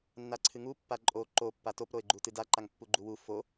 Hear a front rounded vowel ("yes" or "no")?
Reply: no